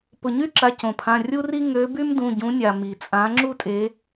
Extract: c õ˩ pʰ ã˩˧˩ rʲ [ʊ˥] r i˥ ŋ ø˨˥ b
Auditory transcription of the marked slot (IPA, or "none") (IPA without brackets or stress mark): u˥